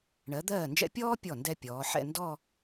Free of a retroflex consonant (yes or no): no